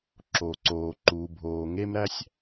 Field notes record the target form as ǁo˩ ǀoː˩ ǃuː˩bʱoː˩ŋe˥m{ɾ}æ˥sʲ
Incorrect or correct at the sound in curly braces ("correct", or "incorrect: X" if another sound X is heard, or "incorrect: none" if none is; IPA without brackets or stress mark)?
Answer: correct